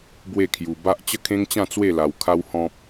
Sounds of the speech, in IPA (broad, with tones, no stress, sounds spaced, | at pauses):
b w e˥˧ kʰ j u˧ b a˦ ʔ t͡ɕ ə˦ kʰ ẽ˦ ŋ t͡ɕ ã˥˧ t͡s w e˥˧ l a˧ w kʰ a˦ w h ɔ̃˦ p̚